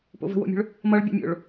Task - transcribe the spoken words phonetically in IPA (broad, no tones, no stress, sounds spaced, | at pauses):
p o̰ v ə̤ w o̰ mʲ o̤ ɭ | m ʌ ɭ bʲ ə̰ mʲ o̰ ɭ